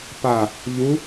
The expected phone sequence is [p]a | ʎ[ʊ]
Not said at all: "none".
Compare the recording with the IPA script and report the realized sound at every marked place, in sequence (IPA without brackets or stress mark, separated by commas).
p, u